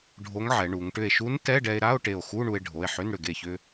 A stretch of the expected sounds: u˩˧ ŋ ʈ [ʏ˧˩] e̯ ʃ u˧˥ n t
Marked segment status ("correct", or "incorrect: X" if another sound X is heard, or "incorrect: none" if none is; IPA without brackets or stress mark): correct